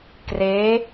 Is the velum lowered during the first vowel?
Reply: no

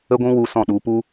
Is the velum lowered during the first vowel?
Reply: no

